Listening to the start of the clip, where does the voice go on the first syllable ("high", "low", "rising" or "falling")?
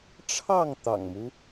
falling